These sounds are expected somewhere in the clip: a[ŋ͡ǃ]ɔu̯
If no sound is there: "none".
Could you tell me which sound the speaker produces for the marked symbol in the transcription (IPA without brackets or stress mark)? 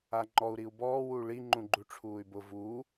ŋ͡ǃ